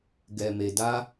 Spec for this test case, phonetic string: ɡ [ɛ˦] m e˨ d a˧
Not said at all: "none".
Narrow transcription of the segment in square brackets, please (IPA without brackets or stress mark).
ɛ˨